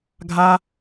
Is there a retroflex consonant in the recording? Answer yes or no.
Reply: no